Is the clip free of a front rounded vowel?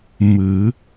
yes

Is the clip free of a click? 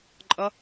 no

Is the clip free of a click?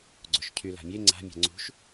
no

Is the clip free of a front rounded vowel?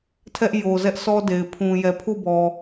yes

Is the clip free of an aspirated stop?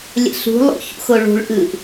yes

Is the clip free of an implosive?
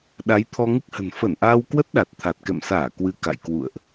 no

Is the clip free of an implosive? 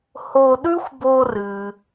no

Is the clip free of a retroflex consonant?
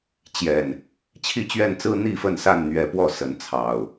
yes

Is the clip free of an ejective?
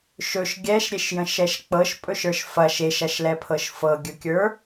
no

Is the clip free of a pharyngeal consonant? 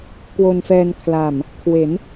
yes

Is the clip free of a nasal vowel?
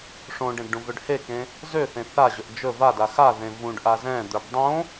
no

